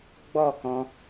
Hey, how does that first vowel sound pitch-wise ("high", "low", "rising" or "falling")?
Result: falling